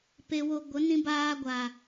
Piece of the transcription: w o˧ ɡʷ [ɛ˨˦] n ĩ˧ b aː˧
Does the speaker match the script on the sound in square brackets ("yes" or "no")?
no